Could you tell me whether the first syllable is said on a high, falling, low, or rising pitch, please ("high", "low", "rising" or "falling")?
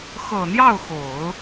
low